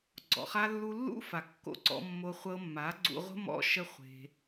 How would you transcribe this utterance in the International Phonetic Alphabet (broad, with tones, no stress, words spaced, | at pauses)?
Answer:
ɡ͡ǀɔ̰˨χa˧lːu˧ lːṵ˦fa˨kːo̰˧ ǀɔ̰˧mːo˧ χʷɤ˧mːa˨˦ ɡ͡ǀṵ˧ʁʷə̤˦ mɔ̰˦ ʃə˦χʷe̤˧